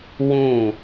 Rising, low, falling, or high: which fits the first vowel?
falling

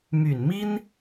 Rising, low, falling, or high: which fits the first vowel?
low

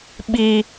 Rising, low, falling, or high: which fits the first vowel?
high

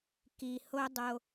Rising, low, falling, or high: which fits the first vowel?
low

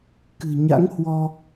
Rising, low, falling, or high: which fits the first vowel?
low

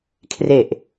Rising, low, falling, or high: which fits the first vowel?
low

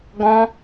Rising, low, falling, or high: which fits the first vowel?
high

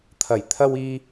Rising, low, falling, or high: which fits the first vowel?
low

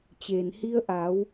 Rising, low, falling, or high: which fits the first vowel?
low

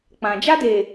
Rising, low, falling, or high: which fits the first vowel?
low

